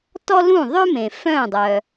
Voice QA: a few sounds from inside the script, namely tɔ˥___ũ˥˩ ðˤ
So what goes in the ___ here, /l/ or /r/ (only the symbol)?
l